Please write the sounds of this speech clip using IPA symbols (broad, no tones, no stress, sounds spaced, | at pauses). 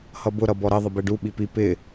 h ʌ b ʊ ɾ ʌ b ɔ ɾ ə ðˤ ɪ b ɛ ɖ u ɓ i p i p ɪ